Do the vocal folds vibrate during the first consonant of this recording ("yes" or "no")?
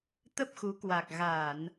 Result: no